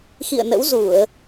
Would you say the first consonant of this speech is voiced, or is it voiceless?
voiceless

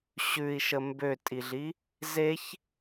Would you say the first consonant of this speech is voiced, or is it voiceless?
voiceless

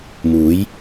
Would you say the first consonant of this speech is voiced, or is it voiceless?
voiced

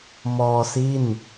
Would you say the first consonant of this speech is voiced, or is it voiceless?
voiced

